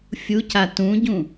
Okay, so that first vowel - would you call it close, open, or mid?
close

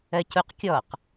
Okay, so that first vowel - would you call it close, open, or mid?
mid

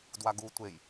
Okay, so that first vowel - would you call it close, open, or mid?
open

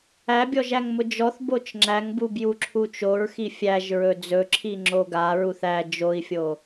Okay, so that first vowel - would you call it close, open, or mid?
open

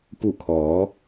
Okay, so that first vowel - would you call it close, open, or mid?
close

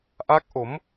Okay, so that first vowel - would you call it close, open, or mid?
open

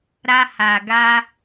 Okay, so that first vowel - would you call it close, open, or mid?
open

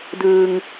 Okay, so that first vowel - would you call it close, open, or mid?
close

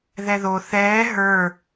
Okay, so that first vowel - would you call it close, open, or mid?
mid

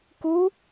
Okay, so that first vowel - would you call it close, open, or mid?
close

